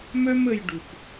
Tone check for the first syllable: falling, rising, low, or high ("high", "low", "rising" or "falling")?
high